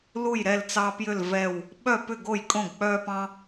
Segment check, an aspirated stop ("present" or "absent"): absent